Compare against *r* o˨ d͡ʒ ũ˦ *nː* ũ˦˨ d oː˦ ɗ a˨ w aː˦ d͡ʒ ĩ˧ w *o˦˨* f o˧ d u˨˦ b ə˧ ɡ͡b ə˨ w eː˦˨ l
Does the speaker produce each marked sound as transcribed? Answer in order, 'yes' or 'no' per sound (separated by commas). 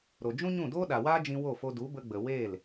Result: no, no, yes